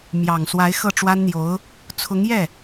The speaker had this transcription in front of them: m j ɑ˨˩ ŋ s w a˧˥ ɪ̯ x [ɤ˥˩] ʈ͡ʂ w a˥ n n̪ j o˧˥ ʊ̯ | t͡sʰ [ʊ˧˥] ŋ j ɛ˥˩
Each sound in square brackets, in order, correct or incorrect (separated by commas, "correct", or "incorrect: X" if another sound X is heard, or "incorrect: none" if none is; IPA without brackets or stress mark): correct, correct